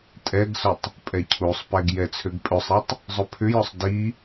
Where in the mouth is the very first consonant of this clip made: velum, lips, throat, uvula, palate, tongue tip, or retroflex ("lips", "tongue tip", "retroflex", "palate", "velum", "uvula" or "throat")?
tongue tip